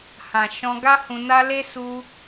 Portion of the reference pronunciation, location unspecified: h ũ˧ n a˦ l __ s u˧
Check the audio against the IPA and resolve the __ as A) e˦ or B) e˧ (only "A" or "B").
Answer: A